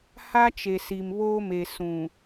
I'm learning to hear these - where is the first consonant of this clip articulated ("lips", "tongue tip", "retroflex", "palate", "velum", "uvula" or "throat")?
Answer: throat